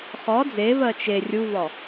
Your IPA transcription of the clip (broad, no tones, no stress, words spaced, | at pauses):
χɒ d͡zevɜ t͡ʃe rʲuvɒ